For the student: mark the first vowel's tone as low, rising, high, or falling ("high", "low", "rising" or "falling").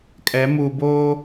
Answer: rising